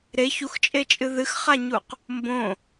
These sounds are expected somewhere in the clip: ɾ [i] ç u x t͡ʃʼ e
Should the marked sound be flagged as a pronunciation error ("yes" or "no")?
yes